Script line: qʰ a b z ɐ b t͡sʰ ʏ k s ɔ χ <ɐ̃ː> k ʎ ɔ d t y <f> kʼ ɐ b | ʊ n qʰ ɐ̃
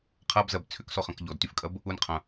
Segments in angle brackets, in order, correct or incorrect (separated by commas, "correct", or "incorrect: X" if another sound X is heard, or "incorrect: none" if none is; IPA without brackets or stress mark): incorrect: ɐ̃, correct